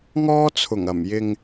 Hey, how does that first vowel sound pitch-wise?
high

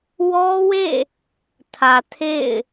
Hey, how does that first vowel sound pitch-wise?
high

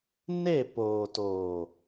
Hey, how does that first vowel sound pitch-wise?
falling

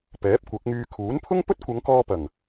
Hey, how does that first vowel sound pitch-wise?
rising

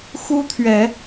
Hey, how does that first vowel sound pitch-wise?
high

